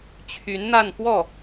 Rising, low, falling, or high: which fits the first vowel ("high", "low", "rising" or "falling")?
rising